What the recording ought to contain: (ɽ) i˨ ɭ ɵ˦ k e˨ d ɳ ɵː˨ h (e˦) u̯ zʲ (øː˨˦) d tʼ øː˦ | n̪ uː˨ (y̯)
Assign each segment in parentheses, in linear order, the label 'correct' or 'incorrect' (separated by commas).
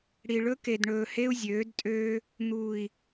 correct, correct, correct, incorrect